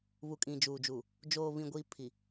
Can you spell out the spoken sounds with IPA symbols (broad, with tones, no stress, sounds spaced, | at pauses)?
β u˨ kʼ ĩ˨ d͡ʒ uː˨ d͡ʒ u˨ | d͡ʒ oː˨ β ĩ˨ ɡʷ iː˨ pʰ i˨